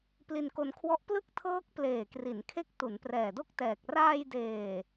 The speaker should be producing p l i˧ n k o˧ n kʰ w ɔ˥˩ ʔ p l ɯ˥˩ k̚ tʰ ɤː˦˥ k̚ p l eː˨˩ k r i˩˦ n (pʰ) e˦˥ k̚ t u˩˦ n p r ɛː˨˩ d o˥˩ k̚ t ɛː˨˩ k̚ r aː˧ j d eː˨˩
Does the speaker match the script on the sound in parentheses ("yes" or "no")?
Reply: no